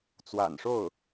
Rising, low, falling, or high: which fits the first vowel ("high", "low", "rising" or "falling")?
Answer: low